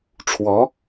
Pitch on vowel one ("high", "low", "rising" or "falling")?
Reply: rising